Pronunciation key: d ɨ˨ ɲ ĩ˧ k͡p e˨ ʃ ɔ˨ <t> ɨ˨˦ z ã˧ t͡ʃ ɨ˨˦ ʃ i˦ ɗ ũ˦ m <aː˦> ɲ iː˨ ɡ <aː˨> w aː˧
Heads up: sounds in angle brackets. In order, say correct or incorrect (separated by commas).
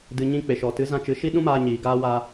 correct, incorrect, incorrect